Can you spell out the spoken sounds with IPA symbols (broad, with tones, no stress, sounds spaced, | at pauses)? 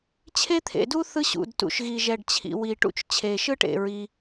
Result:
t͡ɕʰ e˥ t̪ʰ ḛ˩ d u˥ θ ɯ˥ ɕ ṵ˩ d t ṵ˩ ʃ ɣ i˩ ʒ ɛ˩ ɖ t͡ɕʰ ḭ˩ w i˩ ʈ ṵ˥ t͡ʃ t͡ɕʰ e˩ ʃ ɯ˥ ʈ ḛ˩ ɹ i˩